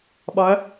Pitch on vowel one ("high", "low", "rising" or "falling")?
rising